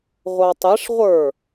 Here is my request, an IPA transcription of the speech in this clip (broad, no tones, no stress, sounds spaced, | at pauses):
ʁʷ ɑ tˤ ɪ ʂ ʁʷ ə˞